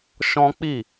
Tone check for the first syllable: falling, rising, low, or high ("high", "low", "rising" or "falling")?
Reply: high